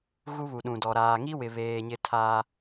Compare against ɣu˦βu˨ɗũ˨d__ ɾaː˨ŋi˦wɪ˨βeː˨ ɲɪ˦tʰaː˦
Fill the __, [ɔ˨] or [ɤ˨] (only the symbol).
ɔ˨